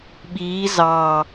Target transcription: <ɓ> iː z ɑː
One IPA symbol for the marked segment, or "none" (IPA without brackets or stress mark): ɓ